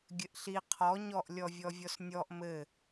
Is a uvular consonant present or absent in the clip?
present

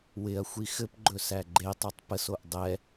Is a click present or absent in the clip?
present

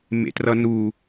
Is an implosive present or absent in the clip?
absent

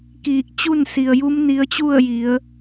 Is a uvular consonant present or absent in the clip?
absent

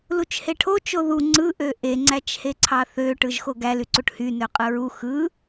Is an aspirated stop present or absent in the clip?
present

